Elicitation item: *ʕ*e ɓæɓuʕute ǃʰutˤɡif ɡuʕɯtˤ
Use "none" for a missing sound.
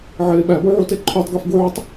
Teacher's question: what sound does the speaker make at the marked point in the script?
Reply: ʕ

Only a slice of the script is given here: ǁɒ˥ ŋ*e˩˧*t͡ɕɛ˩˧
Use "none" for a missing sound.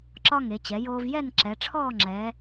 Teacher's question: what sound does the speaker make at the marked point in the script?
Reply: e˩˧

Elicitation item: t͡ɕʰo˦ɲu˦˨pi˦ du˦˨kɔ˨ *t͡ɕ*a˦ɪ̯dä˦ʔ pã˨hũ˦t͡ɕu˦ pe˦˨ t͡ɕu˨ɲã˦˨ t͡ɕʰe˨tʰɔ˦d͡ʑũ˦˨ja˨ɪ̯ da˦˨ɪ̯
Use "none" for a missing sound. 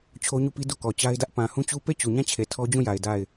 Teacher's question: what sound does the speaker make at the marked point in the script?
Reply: t͡ɕ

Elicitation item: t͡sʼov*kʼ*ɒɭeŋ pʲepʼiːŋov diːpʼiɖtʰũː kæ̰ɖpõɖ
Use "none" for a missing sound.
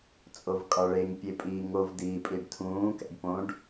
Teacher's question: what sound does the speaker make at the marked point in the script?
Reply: kʼ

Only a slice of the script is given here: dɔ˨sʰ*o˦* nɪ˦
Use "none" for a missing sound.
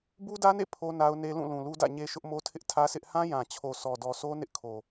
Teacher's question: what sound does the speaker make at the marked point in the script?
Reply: o˦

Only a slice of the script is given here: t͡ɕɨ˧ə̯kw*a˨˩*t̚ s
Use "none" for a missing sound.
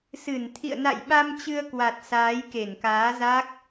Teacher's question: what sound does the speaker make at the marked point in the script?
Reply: a˨˩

